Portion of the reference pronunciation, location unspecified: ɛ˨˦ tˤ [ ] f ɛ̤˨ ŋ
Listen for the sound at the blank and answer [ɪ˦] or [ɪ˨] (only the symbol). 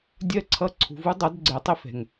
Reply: ɪ˦